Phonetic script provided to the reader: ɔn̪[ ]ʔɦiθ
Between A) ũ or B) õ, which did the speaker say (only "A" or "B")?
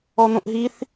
B